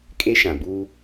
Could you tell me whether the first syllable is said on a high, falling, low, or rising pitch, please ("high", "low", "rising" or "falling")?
high